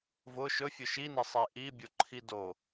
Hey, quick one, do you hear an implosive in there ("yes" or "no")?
no